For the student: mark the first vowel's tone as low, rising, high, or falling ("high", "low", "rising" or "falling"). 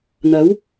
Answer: rising